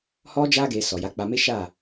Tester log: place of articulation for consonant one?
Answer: glottal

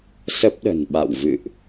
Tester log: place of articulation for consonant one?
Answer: alveolar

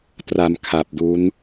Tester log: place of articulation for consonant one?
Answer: alveolar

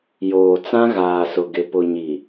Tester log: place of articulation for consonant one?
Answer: palatal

